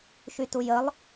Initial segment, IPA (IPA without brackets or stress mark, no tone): ʃ